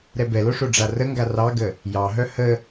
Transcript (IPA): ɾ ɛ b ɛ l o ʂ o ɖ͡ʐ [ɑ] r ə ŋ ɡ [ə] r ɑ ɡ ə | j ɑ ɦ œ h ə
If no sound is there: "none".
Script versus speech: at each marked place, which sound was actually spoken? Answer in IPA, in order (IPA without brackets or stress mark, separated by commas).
a, a